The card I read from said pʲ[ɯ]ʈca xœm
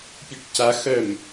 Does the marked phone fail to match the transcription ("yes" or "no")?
no